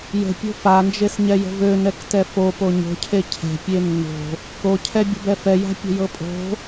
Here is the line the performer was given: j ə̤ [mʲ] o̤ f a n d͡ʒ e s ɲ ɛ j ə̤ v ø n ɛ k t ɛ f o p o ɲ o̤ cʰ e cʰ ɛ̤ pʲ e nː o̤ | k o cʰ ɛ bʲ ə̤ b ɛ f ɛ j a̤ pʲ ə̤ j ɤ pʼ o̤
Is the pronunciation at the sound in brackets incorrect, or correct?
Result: incorrect